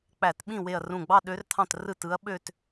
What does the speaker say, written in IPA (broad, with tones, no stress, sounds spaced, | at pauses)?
k͡p æ˧˩˧ t ɓ ĩ˥˩ w e˧˩ ɐ̯ r ũ˧˩ ɡ͡b ɑ˥˧ ɗ ø˧˥ r t̪ʰ ɑ̃˥˩ t r ɯ˥˩ t ɯ˧˥ ɐ̯ ɓ ø˥˧ t